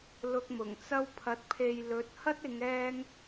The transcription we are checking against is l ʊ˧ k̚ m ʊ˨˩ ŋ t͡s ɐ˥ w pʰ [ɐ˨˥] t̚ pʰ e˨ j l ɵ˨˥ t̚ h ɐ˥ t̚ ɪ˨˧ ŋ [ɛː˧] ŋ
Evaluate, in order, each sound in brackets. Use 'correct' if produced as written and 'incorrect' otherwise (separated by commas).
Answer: incorrect, correct